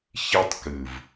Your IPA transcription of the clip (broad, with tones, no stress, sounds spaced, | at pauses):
ç i˦ tˤ k ɨ˨ v